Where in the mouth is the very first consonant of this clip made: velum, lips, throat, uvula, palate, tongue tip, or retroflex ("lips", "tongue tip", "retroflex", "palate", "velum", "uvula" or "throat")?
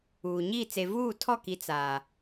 palate